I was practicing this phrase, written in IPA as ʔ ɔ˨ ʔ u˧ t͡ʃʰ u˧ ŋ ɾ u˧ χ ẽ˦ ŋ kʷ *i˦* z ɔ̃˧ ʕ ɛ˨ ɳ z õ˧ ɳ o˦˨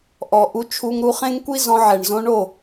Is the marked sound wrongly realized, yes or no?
no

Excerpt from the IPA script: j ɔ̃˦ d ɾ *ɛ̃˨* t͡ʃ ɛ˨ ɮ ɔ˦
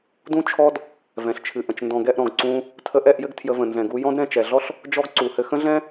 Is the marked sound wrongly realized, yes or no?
yes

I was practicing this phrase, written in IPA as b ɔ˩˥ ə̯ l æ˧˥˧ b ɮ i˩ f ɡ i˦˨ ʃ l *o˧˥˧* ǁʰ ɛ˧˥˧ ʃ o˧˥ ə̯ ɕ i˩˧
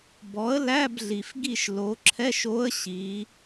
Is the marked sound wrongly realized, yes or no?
yes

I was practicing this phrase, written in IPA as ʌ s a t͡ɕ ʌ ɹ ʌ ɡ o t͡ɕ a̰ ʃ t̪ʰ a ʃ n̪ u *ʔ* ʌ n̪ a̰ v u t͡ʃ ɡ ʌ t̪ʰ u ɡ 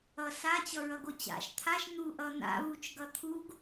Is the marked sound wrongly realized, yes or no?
no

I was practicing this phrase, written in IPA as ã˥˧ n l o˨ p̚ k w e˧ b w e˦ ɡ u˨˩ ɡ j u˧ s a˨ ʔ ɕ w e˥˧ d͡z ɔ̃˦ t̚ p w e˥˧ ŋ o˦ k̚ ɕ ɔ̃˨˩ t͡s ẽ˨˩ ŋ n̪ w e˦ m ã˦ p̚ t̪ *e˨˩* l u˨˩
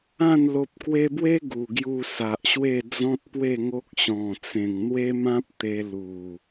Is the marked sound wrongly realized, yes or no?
yes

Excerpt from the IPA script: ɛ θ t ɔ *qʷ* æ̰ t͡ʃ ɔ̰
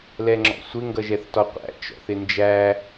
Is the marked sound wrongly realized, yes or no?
no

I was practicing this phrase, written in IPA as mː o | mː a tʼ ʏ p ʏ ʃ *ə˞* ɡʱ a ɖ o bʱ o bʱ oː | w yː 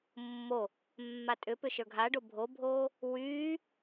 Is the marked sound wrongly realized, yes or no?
no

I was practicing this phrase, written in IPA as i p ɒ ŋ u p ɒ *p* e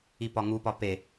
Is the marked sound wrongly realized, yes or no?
no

